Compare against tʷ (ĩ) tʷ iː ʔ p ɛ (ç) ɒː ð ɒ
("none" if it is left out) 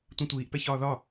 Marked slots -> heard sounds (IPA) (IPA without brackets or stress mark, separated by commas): ĩ, ç